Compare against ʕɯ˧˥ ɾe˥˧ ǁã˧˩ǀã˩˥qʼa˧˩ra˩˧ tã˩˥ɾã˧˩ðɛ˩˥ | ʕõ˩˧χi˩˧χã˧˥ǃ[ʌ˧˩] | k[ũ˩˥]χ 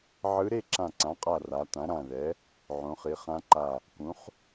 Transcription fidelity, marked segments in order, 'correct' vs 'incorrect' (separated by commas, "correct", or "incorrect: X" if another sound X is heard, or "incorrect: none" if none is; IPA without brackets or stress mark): incorrect: a˧˩, correct